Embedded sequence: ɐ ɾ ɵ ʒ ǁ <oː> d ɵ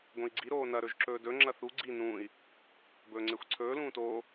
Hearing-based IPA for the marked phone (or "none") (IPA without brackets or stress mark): ɵː